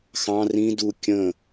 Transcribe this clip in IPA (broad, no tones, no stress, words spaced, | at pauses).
xɑ̃ rĩ du kʲə̃